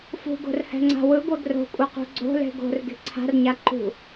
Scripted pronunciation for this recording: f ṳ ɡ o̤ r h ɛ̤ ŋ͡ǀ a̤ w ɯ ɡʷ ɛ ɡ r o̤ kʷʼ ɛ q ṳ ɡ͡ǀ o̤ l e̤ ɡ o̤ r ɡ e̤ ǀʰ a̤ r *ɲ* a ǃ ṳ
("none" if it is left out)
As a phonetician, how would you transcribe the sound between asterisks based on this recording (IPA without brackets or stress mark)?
ɲ